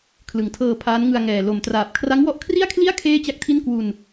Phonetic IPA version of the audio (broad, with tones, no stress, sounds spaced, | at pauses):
kʰ l ɯ˨˩ ŋ tʰ ɤː˧ pʰ aː˦˥ n ŋ ɯ˧ a̯ ŋ ɛː˨˩ l o˨˩ m t r aː˨˩ p̚ kʰ r a˦˥ ŋ w ɔ˦˥ ʔ kʰ r i˥˩ a̯ kʰ l i˥˩ a̯ kʰ eː˥˩ t͡ɕ a˥˩ k̚ tʰ i˥˩ n k w u˧ n